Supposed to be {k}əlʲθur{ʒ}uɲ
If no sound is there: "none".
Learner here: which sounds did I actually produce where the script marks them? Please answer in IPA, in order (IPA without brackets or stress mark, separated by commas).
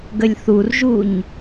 ɡ, ʒ